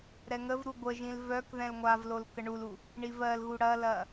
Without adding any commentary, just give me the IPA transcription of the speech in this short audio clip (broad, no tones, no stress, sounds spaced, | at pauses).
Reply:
ɾ ɛ ŋ ə v ɾ u ɡʷ ə ʒ ĩ l v œ k ð ɛ̃ l ŋʷ a v l o l k ə ɳ u l u | ɳ i v ɜ l ɣ u ɽ ɐ l ɐ